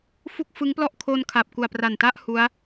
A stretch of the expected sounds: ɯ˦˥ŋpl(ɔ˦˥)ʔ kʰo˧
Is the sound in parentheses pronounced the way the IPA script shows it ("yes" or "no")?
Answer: no